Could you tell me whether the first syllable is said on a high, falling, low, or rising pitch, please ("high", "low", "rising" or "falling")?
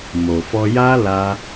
low